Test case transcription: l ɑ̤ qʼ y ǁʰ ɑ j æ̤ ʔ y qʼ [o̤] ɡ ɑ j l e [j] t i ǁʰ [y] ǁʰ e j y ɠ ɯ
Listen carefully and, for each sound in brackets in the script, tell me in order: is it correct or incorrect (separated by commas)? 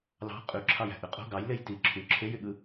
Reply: correct, correct, correct